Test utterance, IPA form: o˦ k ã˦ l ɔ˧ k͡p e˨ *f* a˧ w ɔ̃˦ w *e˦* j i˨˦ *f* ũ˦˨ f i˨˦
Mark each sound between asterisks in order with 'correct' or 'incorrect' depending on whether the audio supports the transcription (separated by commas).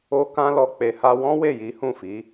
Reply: incorrect, incorrect, incorrect